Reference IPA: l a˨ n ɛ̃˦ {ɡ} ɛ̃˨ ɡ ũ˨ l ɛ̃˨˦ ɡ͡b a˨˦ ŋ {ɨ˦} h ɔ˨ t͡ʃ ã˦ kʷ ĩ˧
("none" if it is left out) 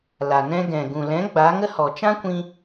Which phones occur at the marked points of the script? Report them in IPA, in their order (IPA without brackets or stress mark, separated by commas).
ɡ, ə˦